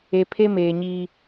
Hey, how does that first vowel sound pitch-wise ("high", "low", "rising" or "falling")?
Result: low